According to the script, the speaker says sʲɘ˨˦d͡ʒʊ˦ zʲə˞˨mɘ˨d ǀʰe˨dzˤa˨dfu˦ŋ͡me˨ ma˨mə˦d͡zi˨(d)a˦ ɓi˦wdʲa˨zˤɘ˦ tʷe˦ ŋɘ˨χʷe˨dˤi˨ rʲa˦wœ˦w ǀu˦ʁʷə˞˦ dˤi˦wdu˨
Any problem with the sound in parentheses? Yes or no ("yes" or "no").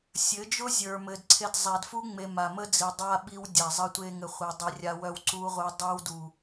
yes